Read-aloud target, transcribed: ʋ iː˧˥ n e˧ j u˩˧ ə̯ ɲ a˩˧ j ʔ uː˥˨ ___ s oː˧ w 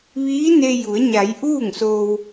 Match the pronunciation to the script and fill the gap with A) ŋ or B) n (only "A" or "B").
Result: A